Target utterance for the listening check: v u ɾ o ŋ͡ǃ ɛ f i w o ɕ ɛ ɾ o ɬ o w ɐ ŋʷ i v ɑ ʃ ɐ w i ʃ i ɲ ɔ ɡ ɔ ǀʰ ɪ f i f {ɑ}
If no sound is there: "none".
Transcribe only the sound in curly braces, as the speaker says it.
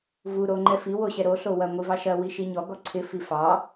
ɑ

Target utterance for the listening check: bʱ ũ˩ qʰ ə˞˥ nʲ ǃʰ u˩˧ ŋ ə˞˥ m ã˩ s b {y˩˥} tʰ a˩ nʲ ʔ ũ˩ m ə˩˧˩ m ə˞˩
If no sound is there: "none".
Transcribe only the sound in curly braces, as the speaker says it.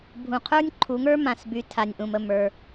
y˩˧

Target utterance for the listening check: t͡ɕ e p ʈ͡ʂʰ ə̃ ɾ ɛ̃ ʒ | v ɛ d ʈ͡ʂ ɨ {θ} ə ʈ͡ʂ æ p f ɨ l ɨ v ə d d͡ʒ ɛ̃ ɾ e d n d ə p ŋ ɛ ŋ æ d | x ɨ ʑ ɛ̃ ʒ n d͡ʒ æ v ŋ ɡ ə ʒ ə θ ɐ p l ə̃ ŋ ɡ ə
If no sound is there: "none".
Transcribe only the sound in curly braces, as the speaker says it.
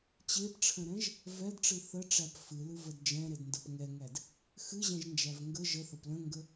θ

